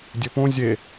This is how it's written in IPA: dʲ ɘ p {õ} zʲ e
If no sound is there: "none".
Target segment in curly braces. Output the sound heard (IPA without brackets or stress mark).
õ